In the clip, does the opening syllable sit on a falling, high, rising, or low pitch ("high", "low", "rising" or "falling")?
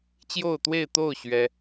falling